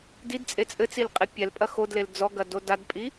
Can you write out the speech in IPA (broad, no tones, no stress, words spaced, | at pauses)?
didt͡sʼe t͡sʼɘt͡sil qʼepʲɛlpʼɐ xodlel d͡zɔɡɐ dodadpʼi